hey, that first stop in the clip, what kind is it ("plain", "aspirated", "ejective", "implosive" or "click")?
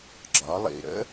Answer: click